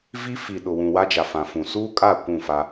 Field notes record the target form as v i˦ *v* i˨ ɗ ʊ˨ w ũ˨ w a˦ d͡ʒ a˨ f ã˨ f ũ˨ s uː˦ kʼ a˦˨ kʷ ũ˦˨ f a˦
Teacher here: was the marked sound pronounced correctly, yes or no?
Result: no